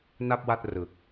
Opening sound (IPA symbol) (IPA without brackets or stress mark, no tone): n